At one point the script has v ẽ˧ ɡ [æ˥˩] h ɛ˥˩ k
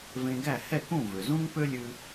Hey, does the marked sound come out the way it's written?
yes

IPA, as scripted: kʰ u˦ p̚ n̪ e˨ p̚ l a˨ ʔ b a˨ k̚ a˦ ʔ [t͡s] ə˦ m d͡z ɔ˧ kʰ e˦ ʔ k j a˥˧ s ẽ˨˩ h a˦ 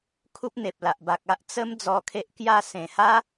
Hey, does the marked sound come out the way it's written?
yes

